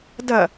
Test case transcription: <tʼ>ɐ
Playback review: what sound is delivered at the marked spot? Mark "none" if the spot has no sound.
d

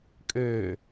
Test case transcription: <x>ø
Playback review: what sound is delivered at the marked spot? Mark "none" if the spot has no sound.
kʼ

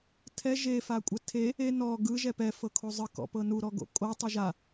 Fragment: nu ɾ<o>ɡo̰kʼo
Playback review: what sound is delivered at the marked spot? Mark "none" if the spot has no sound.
ɔ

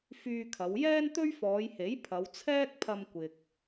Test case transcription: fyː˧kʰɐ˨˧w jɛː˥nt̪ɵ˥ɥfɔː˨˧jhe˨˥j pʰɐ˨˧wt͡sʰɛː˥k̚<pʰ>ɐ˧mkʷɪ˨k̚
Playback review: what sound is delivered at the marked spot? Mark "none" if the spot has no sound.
pʰ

